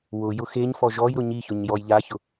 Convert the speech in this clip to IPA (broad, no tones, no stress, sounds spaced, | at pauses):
w ʊ j ʊ x e ɲ f ɔ ʒ ɔ j ɾ ʊ ɲ i ç ʊ ɲ j ɔ j ʎ a ç ʊ